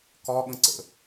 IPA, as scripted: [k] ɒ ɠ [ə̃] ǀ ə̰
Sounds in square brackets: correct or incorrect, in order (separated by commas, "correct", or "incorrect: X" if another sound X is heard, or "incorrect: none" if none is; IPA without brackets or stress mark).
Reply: correct, correct